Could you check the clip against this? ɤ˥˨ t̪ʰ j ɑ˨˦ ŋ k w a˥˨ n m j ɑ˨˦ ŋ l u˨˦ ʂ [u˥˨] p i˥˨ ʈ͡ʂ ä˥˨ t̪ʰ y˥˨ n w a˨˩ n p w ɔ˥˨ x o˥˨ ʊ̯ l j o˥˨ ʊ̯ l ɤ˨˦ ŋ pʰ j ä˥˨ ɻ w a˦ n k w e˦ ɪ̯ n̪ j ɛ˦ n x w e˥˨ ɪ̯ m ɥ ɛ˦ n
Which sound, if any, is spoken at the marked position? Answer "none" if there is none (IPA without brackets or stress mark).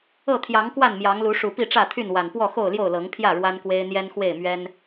u˨˩